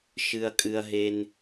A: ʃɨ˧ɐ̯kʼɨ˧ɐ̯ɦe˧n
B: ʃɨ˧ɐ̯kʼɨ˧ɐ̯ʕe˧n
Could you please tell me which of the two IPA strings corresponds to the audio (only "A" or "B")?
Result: A